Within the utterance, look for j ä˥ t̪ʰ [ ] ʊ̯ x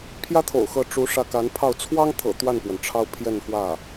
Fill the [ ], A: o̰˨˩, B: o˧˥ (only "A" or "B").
A